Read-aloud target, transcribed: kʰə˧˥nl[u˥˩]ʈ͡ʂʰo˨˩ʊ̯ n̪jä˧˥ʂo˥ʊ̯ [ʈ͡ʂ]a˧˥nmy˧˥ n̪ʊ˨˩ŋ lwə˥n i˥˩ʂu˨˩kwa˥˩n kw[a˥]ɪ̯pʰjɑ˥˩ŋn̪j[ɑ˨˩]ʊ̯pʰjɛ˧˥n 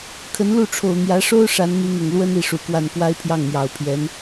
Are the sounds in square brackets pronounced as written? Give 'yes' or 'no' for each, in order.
yes, no, yes, yes

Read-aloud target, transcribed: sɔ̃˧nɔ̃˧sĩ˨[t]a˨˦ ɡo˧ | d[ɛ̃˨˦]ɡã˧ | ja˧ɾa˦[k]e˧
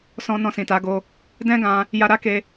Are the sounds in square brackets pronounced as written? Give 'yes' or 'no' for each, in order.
yes, no, yes

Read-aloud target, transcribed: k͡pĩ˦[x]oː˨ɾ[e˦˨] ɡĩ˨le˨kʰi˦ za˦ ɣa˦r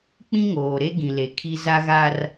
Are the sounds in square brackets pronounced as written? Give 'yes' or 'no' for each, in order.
no, no

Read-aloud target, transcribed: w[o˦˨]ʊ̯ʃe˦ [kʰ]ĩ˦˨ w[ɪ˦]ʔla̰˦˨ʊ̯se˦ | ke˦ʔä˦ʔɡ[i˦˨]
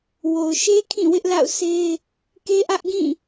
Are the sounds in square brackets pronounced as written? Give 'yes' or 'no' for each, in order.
no, yes, yes, no

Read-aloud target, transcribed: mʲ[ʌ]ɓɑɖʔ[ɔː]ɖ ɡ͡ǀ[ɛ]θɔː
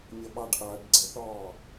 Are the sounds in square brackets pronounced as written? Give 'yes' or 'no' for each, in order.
yes, no, yes

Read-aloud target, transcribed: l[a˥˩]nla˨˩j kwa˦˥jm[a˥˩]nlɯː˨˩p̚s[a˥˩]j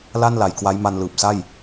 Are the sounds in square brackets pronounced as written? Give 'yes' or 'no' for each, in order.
yes, no, yes

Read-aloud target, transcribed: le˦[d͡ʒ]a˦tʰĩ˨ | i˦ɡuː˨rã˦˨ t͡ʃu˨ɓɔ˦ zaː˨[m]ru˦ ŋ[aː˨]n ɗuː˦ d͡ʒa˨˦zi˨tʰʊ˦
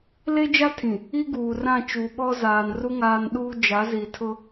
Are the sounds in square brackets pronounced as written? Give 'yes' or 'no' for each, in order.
yes, no, no

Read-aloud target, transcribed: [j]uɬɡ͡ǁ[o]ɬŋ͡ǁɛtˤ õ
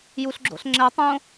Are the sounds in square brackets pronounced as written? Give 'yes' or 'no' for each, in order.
yes, no

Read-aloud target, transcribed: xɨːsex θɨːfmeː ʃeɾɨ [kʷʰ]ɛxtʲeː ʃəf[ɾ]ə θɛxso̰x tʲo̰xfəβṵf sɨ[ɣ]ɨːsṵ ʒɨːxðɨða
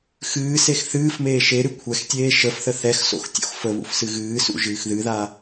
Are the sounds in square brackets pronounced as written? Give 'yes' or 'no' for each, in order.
yes, no, yes

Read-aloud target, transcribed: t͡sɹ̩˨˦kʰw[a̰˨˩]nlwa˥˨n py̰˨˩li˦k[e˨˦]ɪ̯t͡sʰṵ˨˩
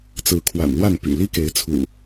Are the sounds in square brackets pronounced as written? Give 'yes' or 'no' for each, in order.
yes, yes

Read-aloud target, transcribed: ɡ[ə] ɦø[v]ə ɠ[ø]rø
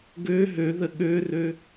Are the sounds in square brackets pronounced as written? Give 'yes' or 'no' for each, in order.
no, no, yes

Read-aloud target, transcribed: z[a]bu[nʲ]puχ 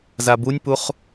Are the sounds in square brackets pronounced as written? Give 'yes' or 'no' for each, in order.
yes, yes

